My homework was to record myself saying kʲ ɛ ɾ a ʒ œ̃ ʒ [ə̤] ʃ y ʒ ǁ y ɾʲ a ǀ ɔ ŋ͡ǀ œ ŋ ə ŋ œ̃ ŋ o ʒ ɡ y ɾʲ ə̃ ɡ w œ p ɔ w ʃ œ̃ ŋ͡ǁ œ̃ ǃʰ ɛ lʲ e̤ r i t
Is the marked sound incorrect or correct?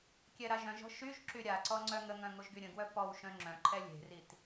incorrect